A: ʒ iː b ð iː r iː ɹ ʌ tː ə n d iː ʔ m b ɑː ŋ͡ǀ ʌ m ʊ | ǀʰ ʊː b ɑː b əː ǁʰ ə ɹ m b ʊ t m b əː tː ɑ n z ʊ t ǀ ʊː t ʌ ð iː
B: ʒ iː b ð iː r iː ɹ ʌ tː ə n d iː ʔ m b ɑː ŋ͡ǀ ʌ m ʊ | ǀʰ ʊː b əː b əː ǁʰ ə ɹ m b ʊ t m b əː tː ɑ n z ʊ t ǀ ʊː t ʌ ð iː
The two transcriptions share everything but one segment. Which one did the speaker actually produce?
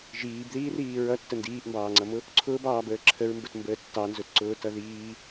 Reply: A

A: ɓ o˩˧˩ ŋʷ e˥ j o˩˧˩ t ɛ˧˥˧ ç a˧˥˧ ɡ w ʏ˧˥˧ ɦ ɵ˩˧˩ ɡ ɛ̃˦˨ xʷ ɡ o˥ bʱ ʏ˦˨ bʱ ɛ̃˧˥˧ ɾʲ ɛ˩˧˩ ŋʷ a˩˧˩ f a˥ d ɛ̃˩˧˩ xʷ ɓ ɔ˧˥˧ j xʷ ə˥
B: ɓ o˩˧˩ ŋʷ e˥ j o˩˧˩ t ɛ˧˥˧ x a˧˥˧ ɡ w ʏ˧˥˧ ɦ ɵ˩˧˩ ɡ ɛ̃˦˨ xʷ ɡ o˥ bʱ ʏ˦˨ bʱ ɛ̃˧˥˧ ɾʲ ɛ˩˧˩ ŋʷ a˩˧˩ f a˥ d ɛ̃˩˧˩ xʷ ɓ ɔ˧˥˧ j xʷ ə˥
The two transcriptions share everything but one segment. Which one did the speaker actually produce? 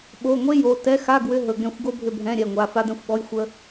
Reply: B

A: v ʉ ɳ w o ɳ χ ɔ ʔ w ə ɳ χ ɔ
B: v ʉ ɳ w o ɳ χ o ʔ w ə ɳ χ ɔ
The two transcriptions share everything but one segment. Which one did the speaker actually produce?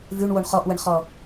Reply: A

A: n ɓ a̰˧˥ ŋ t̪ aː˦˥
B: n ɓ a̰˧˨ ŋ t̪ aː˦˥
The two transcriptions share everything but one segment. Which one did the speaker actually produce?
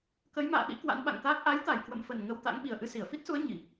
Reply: B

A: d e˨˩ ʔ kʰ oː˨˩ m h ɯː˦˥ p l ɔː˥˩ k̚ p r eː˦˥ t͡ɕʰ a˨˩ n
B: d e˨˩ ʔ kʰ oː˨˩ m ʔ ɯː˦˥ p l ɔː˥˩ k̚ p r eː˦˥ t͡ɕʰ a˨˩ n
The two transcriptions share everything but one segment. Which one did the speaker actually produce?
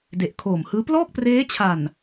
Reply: A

